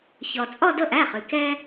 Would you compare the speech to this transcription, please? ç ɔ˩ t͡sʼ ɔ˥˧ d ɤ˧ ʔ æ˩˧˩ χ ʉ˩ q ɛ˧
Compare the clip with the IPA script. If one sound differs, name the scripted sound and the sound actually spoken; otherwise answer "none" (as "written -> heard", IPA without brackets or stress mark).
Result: q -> k